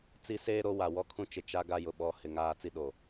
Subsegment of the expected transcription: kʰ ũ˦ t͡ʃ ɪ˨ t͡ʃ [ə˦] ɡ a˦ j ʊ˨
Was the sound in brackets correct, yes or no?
no